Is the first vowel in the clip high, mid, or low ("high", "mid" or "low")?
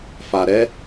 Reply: low